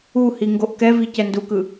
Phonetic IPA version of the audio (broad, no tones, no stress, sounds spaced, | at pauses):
u h i ŋ ɡ o ʔ k ɛ v i c ɛ n d u k ɯ